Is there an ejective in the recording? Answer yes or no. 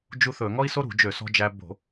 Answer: no